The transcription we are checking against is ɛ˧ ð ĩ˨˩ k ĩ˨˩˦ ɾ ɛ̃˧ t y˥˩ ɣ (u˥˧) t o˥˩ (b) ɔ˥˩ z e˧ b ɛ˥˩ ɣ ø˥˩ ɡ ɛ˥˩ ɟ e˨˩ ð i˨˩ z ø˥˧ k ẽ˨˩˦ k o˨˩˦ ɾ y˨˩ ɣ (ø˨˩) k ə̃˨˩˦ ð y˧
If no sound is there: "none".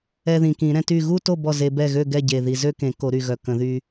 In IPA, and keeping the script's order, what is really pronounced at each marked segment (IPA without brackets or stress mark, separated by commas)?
u˥˧, b, œ˨˩